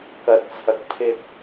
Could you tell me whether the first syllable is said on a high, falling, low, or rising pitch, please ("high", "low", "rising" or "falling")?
low